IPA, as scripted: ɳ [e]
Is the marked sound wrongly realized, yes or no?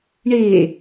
no